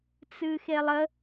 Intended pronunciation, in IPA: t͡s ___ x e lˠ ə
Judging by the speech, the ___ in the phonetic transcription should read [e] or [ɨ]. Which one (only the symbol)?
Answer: ɨ